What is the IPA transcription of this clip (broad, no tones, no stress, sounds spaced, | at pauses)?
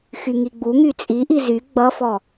x y ŋ i ɡ͡b u ŋ y t͡sʼ i ʔ i z y ɡ͡b ʌ f ɔ